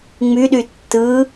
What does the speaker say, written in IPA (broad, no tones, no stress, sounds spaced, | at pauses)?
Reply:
ŋ͡m y ɗ y tː ɯ